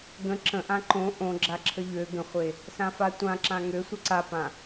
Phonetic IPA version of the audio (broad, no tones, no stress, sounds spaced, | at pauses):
ɡ ə̃ ǁ ə̃ ʔ ã ǃ õ ʔ õ ɡ͡ǁ a ǁʰ ə ʎ ø ɡ ə̃ χʷ e | s ã f a tʷ ã ǁ ã ŋ ø sʷ ə ǀ a p ã